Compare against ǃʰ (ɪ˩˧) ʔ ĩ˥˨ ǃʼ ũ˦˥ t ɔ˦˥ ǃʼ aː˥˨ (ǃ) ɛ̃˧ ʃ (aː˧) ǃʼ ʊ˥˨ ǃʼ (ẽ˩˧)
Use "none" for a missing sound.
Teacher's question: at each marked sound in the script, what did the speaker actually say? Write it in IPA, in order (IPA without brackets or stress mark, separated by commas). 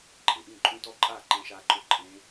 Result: ɪ˩˧, ǃ, aː˧, ẽ˦˥